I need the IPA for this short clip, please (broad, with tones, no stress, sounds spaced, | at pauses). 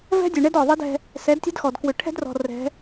v ɛ̤˦ dʲ ʉ˨ ɳ ɛ˦ d ɔ˨ ðˤ i˦ d ɛ̤˦ | s ɛ˨˦ d tʲ ɛ̤˦ d x ɔ˨ d k w ʏ˨ ʈʰ ɛ̤˦ d r ɔ̤˨ r ɛ̤˨˦